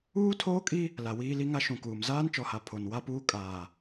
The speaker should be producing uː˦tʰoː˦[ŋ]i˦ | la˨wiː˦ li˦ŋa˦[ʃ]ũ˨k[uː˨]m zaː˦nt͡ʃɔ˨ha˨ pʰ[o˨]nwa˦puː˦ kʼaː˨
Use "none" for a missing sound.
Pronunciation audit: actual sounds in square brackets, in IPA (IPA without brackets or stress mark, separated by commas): kʼ, ʃ, uː˨, o˨